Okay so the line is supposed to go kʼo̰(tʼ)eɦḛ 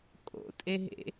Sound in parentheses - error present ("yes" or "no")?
no